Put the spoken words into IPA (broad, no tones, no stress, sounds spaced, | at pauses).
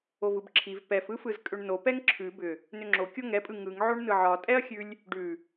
o v ɯ b ǁʰ i v p ɛ f ɯ f ɯ z kʼ ʏ ɳ n o p ɛ ŋ ǁʰ ʉ b ʏ | n ʏ ŋ͡ǁ o kʲ o ŋ ɛ pʼ ɯ ŋ ɯ ŋ ʕ o ɳ n ɯ ʕ ɒ tʼ ɛ ɐ̯ xʲ ʉ lʲ | ɖ ʉ